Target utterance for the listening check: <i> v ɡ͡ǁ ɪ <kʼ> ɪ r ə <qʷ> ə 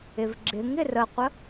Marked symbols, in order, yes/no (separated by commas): no, no, yes